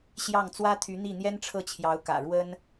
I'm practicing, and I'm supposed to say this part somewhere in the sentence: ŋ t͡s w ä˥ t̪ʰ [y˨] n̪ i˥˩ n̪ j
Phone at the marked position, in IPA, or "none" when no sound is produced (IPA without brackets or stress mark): y˧˥